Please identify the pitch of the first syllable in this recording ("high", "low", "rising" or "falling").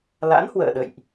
rising